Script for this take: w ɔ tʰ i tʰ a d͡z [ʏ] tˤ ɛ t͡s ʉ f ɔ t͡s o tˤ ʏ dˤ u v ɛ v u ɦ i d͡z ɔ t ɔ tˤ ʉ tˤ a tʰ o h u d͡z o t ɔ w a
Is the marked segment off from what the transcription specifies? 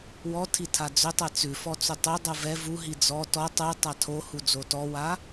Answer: no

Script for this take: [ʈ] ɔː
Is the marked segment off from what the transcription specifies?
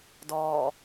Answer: yes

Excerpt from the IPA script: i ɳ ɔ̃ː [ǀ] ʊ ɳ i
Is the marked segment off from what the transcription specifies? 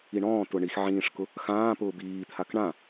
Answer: yes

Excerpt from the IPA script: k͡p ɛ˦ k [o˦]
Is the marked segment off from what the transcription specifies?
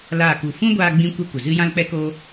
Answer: no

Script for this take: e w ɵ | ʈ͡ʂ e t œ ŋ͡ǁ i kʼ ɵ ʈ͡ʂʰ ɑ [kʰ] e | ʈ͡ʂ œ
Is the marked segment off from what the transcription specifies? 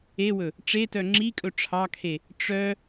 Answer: no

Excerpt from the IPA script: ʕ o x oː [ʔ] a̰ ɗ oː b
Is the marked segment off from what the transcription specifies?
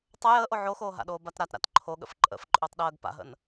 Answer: yes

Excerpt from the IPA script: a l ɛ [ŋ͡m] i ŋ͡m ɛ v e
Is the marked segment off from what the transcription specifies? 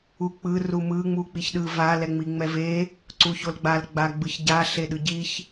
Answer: no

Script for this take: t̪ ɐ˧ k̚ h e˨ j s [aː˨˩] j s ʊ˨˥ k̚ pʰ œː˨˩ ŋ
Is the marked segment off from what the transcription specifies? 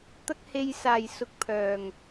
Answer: no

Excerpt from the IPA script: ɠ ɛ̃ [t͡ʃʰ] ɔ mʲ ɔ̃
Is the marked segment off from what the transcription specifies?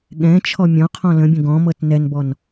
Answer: no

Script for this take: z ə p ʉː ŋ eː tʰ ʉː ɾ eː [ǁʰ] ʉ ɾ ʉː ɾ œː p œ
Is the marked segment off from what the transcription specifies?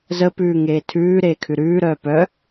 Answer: yes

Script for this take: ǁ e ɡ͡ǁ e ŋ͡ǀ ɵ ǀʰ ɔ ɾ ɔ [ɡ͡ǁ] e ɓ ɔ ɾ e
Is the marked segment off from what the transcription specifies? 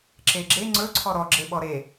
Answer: no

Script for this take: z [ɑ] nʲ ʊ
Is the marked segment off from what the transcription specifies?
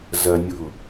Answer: yes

